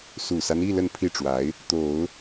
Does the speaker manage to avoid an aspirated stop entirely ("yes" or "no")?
no